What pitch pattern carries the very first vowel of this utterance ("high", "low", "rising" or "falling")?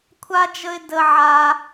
high